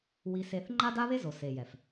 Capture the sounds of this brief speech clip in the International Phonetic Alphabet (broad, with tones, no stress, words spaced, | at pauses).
wi˧se˧θ ŋ͡ǃa˦da˦βe˦zo˨ se˨jɛ˨f